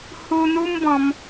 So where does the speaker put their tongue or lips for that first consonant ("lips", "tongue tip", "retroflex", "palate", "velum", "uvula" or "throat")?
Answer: throat